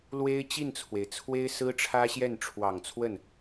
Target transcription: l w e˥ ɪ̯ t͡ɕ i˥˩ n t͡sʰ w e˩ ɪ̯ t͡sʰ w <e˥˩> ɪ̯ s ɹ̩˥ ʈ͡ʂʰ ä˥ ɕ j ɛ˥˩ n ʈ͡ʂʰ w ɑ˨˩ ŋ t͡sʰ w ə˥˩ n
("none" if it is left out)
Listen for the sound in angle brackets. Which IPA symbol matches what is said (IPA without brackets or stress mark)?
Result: e˥